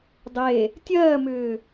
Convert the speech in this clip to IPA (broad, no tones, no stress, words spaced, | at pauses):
dˤe | tʲɜːmʏː